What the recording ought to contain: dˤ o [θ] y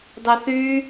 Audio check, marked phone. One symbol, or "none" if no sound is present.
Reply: θ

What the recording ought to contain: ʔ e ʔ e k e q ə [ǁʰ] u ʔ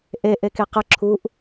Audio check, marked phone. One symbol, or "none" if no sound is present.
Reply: ǁʰ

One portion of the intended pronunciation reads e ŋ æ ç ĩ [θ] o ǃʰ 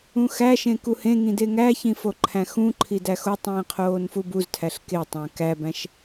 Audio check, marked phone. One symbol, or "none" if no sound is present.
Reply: f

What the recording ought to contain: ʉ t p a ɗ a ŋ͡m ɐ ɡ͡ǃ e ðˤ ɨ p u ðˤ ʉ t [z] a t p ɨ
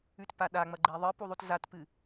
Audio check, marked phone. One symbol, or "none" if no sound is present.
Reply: z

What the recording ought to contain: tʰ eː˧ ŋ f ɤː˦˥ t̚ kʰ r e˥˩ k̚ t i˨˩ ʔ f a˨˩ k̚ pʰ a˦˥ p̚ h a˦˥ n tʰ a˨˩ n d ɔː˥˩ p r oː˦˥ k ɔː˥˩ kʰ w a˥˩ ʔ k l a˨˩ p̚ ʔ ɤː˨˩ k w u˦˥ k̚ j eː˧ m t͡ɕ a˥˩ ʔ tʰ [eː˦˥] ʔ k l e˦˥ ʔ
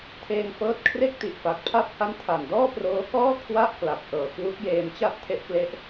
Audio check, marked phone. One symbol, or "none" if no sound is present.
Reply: e˦˥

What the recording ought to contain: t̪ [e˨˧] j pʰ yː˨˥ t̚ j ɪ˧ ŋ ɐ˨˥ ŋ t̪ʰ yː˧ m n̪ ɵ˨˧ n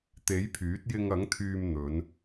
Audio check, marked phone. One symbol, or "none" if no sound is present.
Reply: e˨˥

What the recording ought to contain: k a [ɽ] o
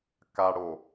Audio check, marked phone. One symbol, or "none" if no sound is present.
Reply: ɽ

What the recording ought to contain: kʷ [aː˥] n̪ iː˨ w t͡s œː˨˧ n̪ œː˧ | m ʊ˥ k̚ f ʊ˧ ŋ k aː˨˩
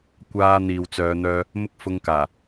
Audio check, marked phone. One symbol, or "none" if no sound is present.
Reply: aː˧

